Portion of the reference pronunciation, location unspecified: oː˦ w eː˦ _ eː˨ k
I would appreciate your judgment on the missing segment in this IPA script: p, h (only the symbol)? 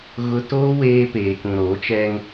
p